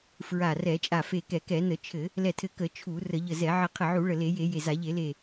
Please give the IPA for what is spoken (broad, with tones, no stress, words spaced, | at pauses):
fɹa˧˩ rɛ˧˩˧t͡ʃʼa˧˩fe˧˩kɛ˧˩˧ kɛ˧˩˧nə˧˩˧t͡ʃʰɘ˧˩˧ | lɛ˧˩tʰɘ˧˩ kə˧˩˧ t͡ʃʰu˧˩˧ rə˧˩˧ʎə˧˩zɛ˧˩˧ ʕə˧˩qʰə˧˩ʕu˧˩˧ ɭə˧˩le˧˩˧je˧˩˧ je˧˩za˧˩˧ ʎe˧˩˧le˧˩